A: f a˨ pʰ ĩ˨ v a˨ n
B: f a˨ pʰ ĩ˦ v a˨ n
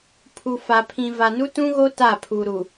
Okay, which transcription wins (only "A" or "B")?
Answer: A